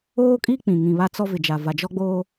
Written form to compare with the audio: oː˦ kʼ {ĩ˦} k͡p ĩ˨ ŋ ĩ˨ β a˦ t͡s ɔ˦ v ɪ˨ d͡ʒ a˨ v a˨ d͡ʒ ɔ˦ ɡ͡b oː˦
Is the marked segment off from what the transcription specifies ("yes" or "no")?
yes